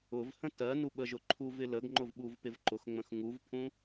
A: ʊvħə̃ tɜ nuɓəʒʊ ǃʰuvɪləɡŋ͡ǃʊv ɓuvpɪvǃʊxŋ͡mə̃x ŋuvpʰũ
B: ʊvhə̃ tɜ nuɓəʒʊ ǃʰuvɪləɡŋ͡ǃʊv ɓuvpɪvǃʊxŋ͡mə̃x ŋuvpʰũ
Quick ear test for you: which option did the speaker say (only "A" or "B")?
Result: B